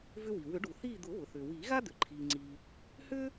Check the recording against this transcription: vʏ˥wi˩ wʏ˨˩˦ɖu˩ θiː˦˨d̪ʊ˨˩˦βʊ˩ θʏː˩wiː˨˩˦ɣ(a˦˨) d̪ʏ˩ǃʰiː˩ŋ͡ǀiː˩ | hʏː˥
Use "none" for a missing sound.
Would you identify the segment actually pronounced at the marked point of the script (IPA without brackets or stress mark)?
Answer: a˥